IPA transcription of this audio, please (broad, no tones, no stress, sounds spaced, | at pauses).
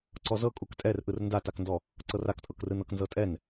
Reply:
ǀ ɔ z ɤ kʼ u k tʼ ɛ r ʔ ɯ r n d a t a k n d ɔ | ǀ ɤ r a k tʼ ɤ k r ɯ n ɤ k n z ɤ tʼ ɛ n